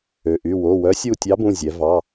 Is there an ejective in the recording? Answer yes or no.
no